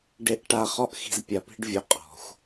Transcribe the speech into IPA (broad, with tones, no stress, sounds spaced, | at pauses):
ɖ e˧ ʔ ʈ a˨ χ ɔ˧ ʔ x i̤˨ z pʲ a˨ p i̤˧ ɖ vʲ o˨ qʼ ɔ̤˨ xʷ